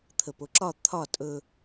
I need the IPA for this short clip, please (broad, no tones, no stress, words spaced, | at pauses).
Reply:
t̪ʰəpoǁɒ t̪ʰɒ tʼɵ